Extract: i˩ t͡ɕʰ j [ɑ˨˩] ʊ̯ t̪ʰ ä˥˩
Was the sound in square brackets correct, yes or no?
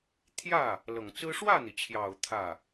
yes